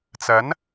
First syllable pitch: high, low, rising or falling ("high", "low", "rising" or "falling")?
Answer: rising